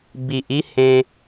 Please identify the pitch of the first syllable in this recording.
low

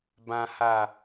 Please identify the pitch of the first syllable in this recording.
low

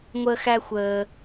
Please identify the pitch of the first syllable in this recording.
high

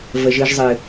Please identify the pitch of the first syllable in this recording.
low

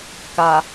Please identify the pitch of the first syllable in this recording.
low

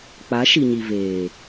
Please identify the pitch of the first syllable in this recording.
rising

